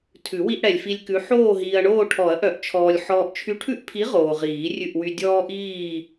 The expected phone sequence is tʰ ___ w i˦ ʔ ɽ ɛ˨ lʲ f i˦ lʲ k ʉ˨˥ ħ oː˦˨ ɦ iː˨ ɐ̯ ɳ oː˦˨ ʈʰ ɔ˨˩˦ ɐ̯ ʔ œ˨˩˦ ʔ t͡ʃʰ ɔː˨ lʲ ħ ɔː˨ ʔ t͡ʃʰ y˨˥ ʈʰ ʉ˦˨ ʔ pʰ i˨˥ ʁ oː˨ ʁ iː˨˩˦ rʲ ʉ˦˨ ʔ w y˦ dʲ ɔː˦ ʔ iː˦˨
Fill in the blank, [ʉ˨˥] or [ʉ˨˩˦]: ʉ˨˩˦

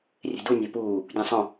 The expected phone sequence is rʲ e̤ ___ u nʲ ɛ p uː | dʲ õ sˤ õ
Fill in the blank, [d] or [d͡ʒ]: d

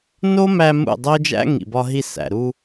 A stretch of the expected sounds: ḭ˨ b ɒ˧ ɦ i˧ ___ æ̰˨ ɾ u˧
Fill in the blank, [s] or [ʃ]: s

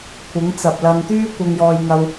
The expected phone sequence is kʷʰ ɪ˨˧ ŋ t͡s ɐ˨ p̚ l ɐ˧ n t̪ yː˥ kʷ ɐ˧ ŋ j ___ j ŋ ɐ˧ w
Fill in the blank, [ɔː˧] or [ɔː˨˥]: ɔː˧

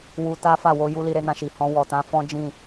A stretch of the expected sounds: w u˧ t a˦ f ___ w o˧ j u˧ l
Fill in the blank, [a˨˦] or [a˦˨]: a˦˨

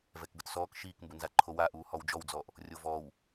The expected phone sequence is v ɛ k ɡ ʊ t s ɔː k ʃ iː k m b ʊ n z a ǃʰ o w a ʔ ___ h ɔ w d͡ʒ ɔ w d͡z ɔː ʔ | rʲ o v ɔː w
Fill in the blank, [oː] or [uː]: uː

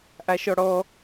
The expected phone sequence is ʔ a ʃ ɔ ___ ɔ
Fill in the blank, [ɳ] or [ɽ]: ɽ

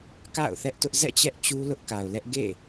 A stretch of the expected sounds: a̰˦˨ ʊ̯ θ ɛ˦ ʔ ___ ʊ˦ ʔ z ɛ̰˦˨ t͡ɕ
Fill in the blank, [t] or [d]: t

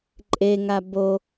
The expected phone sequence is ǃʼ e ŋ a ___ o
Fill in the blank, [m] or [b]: b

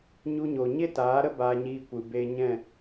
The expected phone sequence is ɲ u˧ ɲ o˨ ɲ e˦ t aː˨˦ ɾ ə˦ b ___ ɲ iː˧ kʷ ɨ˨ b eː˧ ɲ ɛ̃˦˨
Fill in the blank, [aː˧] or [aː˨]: aː˧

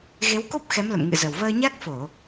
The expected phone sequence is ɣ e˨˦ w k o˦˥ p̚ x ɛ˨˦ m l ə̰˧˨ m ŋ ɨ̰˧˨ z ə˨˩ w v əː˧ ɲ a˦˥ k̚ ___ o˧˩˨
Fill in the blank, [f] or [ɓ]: f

